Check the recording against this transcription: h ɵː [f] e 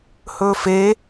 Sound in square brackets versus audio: correct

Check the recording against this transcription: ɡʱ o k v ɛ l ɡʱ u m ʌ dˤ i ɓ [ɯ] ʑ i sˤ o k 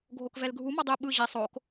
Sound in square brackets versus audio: correct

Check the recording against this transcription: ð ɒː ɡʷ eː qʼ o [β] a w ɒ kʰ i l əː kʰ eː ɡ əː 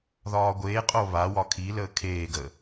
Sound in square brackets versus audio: correct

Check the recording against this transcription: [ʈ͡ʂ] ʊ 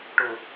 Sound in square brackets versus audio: incorrect: ʈ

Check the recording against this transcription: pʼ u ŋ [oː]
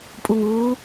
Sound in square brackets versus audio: incorrect: uː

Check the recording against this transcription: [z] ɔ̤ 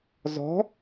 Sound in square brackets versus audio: correct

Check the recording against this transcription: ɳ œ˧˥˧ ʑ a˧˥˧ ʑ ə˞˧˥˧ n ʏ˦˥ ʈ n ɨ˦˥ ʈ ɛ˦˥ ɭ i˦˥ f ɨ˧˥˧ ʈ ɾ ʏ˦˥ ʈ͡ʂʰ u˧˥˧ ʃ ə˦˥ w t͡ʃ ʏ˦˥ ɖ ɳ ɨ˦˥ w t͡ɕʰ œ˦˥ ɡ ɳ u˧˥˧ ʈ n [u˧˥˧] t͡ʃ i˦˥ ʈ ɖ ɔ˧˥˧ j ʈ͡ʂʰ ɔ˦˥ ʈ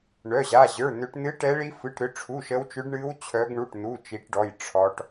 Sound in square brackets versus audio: correct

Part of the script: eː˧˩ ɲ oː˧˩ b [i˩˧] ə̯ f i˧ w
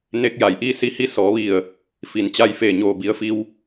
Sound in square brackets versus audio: correct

